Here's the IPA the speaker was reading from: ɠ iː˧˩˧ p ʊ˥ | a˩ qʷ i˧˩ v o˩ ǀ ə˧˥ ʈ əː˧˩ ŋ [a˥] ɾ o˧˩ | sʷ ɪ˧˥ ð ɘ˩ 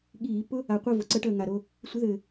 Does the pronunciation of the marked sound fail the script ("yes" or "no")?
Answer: yes